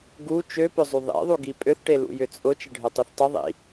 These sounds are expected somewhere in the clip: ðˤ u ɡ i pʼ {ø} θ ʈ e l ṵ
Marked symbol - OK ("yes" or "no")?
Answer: yes